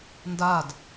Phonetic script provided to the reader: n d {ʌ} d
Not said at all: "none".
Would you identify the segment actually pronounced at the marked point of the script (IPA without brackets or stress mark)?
a